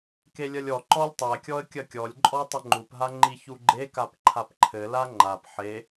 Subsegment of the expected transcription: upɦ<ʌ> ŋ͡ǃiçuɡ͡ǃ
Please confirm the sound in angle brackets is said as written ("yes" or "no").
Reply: no